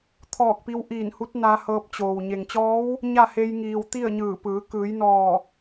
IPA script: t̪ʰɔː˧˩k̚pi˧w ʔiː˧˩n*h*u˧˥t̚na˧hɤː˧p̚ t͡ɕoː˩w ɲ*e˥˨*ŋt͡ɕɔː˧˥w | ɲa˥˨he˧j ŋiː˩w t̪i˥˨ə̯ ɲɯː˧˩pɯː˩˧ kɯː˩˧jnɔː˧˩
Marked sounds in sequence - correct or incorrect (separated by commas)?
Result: correct, incorrect